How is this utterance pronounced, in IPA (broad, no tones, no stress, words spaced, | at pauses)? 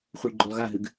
χʷiɭɡ͡ǃulˠɣaɦɨɡ